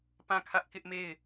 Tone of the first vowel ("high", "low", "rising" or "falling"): falling